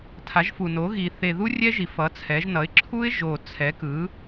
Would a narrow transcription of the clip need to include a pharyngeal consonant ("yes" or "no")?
no